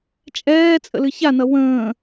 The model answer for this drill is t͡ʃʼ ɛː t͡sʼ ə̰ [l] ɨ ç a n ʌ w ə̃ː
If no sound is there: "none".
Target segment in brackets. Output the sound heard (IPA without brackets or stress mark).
l